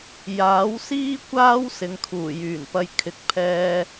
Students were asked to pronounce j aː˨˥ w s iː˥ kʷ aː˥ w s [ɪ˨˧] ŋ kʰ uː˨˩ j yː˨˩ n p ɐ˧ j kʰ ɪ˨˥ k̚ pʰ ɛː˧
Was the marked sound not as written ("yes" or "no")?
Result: no